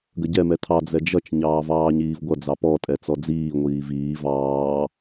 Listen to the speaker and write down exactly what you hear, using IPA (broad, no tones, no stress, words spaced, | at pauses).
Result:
ɡəɟɛ mɛtʰɑ d͡zɛd͡ʒʌt͡ʃ ɲɑːvɑːɲiːvɡʷʌ d͡zɑpɔ tʼɛt͡sɔd͡ziː ŋʷiːviː vɑː